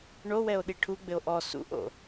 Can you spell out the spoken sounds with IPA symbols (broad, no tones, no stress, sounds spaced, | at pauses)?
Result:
ɳ o w ɛ o̯ ɗ i ʈʰ u ɡ͡b ɘ o̯ ʔ ɔ s ṵ ʔ o̰